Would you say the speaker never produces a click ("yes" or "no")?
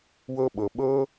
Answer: yes